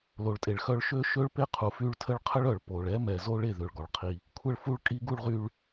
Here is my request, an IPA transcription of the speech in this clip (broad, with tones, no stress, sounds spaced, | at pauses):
l o˨ ɭ tʼ e˨ ɭ x œ˦ ɭ ʃ ø˦ ʃ ø˦ ɭ p e˦ qʰ u˨ f y˦ ɭ tʰ ə˦ ɭ qʰ ə˦ ɭ œ˨ ɭ p o˨ ɭ ɛ˦ m ɛ˨ z o˦ ɭ e˦˨ ð ø˨ ɭ ɡ ɔ˨ ɭ qʰ i˦ | kʷʰ ə˦˨ ɭ f u˦ ɭ kʼ i˦ ɡ u˦ ɭ ʁ y˦ ɭ